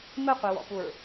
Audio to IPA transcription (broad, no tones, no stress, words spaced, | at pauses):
mɘqʷewɔ̰puɹ